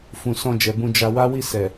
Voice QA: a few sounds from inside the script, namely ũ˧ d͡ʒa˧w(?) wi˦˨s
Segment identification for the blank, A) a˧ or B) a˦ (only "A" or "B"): B